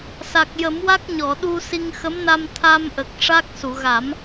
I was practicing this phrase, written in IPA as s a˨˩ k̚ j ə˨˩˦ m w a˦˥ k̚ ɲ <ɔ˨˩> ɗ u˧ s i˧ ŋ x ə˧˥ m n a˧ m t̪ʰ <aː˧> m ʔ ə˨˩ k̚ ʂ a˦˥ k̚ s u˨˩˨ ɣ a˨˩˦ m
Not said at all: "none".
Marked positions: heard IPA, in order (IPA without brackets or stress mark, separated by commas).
ɔ˨˩˨, aː˧